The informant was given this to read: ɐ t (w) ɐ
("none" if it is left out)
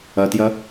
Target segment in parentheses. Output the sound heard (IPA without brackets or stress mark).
j